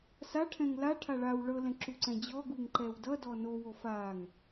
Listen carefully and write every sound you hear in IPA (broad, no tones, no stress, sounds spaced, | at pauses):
s a ʈʰ ɛ̃ ŋ l a ʈʰ a ɭ a w ɭ ɤ l ɛ̃ ǁ u ǀ ɛ̃ d͡ʑ ɔ ɡ u ŋ ǃ ɛ w d ʌ d ɔ n o w o f a ŋ